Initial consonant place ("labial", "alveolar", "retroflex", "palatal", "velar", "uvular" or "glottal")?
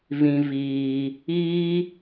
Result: labial